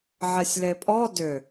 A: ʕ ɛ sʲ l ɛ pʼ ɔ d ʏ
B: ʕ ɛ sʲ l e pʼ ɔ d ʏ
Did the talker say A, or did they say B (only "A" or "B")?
B